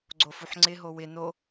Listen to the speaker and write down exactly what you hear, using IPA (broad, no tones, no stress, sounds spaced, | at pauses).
ɡ͡ǀ o f u ħ ŋ͡ǀ ɪ ɦ o w ɪ n o